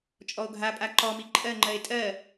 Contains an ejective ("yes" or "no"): yes